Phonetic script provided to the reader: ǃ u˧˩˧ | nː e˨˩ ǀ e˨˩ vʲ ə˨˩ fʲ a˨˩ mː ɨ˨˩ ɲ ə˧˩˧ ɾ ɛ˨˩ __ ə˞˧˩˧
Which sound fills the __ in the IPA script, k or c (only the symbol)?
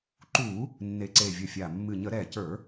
c